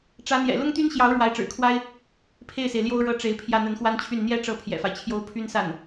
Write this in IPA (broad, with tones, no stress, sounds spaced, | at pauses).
ʈ͡ʂ ä˧˥ n̪ j ɛ̰˨˩ l ʊ˥ ŋ t̪ y˥ n ɕ j ɑ˧˥ ʊ̯ ɻ w a˧˥ ɪ̯ ʈ͡ʂ ɻ̩˨˩ kʰ w a˥ ɪ̯ | pʰ e˥˩ ɪ̯ s e˩ ɪ̯ l j o˥ ʊ̯ ɻ ɤ˥ ʈ͡ʂ e˧˥ ɪ̯ pʰ j ä˥˩ n̪ ə˧˥ n x w a˥ n t͡ɕʰ y˥˩ n n̪ j ɛ˥ ʈ͡ʂ ɤ˥˩ pʰ j ɛ̰˨˩ f a˦ ɪ̯ t͡ɕʰ j o˥ ʊ̯ pʰ y˥ n s a˥˩ n